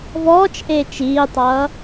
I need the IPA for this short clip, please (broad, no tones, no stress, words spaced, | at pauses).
vɔːt͡ʃʔeːt͡ʃ iːtˤʌː